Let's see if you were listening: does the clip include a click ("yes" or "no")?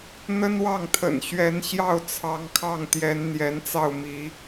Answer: no